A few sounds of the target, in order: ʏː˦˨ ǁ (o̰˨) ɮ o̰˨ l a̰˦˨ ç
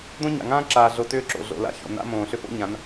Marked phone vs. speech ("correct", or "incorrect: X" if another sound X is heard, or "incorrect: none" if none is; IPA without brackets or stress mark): correct